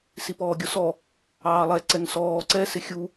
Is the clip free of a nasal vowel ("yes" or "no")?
yes